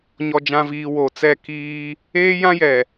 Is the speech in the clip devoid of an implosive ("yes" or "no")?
yes